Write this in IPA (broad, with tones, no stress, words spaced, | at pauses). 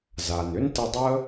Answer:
za˩n ʏ˥ntə˧dˤə˥